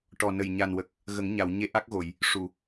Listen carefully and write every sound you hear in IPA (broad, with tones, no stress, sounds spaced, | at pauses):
ʈ ɔ˨˩ n ə˨˩ j ɲ a˨˩ n w ə˨˩ k̚ | ɣ ə˨˩˦ ŋ ɲ a˨˩˨ w ɲ e˧˥ ʔ a˦˥ k̚ ɣ o˨˩˨ j | ʂ u˨˩˨